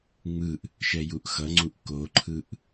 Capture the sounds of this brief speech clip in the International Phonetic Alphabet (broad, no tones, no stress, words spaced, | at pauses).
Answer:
ŋ͡mɯʔ | ʃɛjuʔxʌŋ͡ǀuʔ koǃʰɯʔ